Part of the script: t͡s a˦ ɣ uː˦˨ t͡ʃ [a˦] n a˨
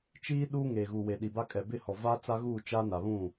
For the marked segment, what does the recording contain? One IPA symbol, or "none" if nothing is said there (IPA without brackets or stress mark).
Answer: a˦